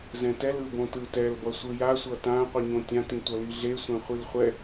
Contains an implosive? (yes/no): no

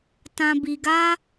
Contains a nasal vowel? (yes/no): yes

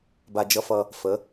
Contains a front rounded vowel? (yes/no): no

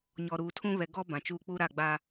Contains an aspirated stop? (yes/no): yes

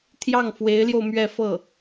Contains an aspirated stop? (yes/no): yes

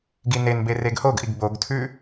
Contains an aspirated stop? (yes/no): yes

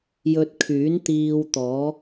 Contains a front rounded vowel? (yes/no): yes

